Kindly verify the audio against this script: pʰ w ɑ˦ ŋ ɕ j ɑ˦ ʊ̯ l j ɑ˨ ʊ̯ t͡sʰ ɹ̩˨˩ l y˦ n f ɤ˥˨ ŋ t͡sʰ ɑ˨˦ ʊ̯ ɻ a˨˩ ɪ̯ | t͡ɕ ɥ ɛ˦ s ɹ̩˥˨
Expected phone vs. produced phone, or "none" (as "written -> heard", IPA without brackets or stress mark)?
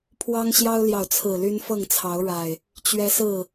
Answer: none